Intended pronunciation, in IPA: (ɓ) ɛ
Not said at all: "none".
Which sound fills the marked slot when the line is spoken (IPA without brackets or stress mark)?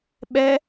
ɓ